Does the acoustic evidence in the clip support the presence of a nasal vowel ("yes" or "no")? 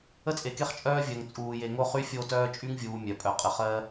no